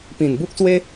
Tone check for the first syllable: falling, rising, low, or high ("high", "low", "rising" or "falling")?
low